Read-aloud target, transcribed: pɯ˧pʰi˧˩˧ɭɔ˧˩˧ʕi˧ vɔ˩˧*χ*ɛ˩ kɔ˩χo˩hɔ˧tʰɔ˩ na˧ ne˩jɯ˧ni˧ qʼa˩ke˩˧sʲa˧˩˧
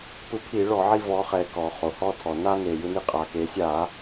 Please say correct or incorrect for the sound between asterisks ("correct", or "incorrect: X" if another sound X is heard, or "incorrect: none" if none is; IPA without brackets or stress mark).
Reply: correct